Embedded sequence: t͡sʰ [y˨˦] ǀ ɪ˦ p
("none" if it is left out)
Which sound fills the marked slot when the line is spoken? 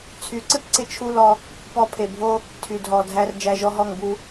y˨˦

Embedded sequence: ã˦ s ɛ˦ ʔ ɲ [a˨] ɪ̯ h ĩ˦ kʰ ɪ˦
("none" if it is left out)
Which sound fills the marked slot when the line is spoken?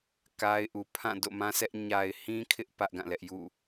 a˨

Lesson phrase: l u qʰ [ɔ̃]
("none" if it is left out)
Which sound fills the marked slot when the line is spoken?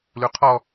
ɔ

